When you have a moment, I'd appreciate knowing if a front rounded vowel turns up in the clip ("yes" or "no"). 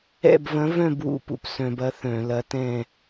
yes